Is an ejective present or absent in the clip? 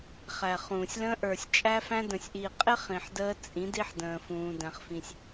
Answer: present